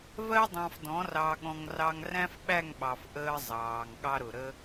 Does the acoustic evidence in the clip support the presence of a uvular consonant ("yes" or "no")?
no